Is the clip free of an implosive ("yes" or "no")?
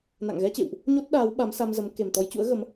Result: no